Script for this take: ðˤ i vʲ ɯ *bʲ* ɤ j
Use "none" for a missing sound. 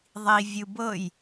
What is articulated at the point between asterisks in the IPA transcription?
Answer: b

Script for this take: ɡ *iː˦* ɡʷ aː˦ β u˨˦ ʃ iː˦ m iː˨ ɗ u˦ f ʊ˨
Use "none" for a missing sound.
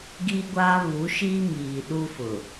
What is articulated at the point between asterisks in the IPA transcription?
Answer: iː˦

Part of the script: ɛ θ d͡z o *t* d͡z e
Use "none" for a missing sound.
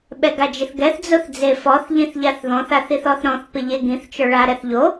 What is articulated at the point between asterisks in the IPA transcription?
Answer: θ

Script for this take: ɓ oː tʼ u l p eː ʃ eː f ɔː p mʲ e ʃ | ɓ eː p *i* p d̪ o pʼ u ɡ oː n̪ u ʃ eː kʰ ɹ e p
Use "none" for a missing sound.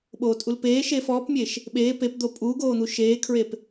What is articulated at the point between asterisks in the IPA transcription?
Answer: e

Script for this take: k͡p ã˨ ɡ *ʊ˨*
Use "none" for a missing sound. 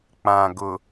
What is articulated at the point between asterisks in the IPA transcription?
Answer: ʊ˨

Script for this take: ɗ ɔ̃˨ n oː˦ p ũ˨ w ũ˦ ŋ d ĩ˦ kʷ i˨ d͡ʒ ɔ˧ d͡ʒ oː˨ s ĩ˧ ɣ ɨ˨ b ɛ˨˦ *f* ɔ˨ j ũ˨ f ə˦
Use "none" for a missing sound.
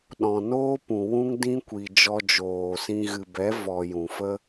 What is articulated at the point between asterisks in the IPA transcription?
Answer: v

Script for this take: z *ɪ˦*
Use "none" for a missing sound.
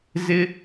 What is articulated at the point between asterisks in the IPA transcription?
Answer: ɪ˦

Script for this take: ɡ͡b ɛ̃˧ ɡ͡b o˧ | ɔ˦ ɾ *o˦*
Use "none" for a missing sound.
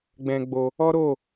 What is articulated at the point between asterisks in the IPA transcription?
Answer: o˦˨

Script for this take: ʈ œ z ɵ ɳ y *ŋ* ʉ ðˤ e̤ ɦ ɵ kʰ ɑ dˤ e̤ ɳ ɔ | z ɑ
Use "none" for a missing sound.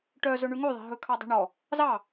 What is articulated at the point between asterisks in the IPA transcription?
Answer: ŋ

